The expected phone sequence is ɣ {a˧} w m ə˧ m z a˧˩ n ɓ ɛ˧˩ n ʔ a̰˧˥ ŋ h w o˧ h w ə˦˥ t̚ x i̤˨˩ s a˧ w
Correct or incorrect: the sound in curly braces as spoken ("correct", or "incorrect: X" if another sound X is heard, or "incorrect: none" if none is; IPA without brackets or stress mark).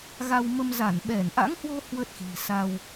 correct